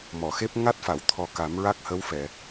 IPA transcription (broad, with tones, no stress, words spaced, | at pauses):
mɔ˨˩˨xe˦˥p̚ ŋa˦˥t̚fa˨˩˨wt̪ʰɔ˨˩ ka˨˩˦mɹa˦˥k̚hə˧˥wfɛ˨˩˨